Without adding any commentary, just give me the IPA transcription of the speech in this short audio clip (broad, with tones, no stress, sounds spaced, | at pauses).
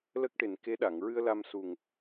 l ə˦˥ k̚ ʈ e˨˩ n k e˧˥ ɗ a˨˩˨ ŋ ɹ ɨ˧ ə̯ l a˧ m s u˨˩ ŋ